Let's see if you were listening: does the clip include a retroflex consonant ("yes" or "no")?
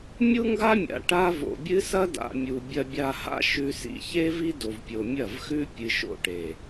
yes